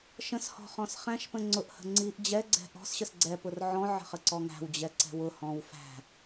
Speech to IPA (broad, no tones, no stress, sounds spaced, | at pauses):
ʃ ə̃ s h ɔ̤ χ ɔ̃ s χ æ̃ ʃ p ə̃ ŋ͡ǀ ʊ ʔ h ə̤ ŋ͡ǀ i ʔ d͡ʑ ɛ ɡ͡ǀ ɛ̤ ʔ ɔ̤ s ɕ ə s ɡ͡ǀ ɛ p ʊ r ʕ ɔ̃ ʕ ə̤ χ ə ǀ ɔ ŋ æ̤ w d͡ʑ ɛ ǀ ɛ̤ w ʊ h ɔ̃ w f æ̤